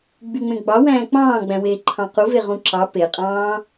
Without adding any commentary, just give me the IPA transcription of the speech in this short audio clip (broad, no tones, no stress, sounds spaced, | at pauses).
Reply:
ɡ͡b y ŋ͡m ẽ ɡ͡b ɑ w æ̃ː k͡p ɑ̃ː ɡ͡b æ̃ w eː ǃʰ ɑ̃ q u v e ʁ ũ ǁ ɑ p e qʼ ɑ̃ː